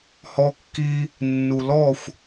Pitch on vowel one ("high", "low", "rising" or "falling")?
high